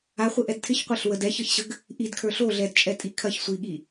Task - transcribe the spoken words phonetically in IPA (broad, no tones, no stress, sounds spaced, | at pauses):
a χʷ ɪ ʔ ɛ d tʰ ɪ ç qʷ e ɬ w ə d ɛ ç ə ç ɕ ə ɡ | ʔ i d kʰ ə˞ ɬ o ɮ ɛ d t͡ʃʼ ɛ tʼ i kʰ ɐ ç sʷ i ɠ i